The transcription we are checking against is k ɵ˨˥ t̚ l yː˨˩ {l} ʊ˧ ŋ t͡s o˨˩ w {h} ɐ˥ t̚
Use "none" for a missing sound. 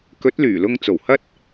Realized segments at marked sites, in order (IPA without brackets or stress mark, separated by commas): l, h